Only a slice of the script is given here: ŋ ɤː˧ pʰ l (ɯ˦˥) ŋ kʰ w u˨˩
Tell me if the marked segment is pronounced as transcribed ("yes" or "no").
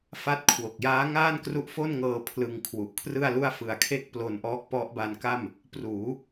no